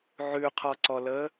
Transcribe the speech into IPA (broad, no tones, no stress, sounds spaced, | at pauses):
ʕ ʉ qʰ ɔ ǀ ɔ l əː